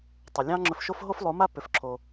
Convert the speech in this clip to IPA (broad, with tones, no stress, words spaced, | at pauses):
tˤo˨lʲɑ̃˦ŋ͡ǁɵ˧fʃo˦f ɦo˦flˠo˨˦ma˦ pʏ˨˦fǁʰo˧